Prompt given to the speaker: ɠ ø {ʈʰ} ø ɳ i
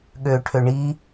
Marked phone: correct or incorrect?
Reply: correct